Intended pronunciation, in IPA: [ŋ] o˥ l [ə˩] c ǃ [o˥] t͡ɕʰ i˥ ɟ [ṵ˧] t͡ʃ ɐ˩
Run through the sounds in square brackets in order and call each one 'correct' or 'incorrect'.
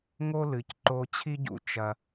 correct, incorrect: ɨ˩, incorrect: o˧, correct

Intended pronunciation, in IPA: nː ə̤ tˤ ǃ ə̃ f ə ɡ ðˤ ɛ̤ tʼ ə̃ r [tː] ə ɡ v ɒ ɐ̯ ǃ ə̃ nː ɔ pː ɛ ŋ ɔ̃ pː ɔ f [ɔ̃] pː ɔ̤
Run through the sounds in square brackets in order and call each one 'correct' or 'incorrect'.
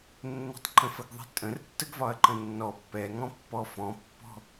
correct, correct

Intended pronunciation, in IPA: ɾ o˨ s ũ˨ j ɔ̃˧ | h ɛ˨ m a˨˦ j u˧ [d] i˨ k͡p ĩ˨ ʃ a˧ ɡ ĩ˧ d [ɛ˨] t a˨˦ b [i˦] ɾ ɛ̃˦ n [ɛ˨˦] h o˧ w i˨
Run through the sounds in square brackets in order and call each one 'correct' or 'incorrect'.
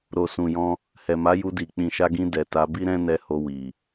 correct, correct, correct, incorrect: ɛ˧

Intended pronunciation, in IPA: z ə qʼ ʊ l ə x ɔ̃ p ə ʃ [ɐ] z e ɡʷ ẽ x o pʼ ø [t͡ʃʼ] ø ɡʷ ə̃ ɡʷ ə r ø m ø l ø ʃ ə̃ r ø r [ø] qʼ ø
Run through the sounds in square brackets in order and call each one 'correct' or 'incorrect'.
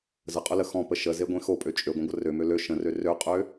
incorrect: ə, correct, correct

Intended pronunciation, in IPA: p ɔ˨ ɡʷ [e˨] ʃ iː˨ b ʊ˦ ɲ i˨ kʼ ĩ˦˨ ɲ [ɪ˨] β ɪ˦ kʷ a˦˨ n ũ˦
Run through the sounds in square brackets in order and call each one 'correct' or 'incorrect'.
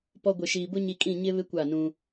correct, incorrect: ɪ˦

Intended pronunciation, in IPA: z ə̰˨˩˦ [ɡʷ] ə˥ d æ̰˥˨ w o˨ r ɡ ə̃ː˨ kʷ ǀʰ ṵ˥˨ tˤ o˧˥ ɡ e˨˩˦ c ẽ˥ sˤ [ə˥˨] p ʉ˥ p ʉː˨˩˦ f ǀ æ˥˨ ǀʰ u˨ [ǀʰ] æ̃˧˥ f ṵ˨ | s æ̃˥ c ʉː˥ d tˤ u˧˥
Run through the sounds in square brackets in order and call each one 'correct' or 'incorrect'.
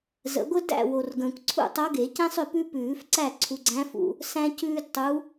correct, incorrect: ʏ˥˨, incorrect: ɡ͡ǀ

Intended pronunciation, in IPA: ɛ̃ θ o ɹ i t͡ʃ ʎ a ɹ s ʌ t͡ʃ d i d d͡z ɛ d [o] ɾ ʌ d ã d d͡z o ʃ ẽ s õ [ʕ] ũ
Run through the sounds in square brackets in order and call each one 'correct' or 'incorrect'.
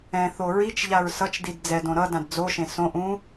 incorrect: õ, incorrect: ʔ

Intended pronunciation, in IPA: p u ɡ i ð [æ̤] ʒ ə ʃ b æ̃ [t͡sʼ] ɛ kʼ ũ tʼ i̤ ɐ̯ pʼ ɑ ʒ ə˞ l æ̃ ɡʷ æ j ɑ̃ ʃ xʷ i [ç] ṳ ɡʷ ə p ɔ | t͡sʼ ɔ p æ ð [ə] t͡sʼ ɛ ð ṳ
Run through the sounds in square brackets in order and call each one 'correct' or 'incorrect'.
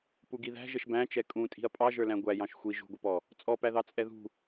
correct, incorrect: t͡ʃ, incorrect: ʒ, incorrect: ɑ

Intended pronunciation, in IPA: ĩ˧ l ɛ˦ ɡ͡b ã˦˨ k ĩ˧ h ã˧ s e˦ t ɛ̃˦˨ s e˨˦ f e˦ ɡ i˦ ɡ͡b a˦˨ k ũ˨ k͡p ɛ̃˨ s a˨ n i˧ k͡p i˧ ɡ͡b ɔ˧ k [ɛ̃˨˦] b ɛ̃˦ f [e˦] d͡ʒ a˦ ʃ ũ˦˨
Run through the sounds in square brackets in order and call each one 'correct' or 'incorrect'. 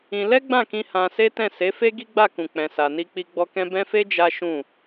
incorrect: ɛ̃˦, correct

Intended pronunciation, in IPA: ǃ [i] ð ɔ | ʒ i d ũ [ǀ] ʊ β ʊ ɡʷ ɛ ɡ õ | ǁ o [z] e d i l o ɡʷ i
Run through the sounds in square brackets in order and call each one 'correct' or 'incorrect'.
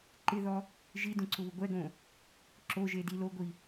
incorrect: ɪ, correct, incorrect: ʒ

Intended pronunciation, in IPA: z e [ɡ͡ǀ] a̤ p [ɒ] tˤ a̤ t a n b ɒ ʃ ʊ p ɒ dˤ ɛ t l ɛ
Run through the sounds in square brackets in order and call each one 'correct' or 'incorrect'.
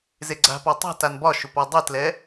correct, correct

